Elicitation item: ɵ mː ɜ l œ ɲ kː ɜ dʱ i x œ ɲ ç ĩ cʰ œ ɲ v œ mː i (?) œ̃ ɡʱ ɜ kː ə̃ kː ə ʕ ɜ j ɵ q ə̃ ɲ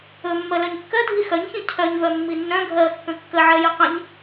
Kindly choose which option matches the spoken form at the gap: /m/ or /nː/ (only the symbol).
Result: nː